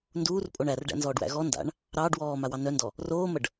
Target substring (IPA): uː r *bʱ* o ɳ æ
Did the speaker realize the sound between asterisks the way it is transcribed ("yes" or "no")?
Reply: no